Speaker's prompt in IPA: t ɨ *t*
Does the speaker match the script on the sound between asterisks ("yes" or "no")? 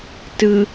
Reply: no